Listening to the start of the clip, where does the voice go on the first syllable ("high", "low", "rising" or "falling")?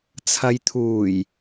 low